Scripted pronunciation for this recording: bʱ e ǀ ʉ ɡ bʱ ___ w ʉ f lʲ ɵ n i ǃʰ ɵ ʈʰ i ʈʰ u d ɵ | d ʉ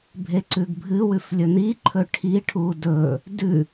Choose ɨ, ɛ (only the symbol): ɨ